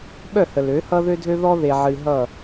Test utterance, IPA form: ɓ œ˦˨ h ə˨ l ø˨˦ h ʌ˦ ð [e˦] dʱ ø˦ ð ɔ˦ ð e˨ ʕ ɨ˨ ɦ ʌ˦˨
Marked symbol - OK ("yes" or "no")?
no